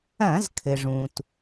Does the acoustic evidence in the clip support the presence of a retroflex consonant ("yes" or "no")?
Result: yes